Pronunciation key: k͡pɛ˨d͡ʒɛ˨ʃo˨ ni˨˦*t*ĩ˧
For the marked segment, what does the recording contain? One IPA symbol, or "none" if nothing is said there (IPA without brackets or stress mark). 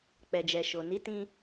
t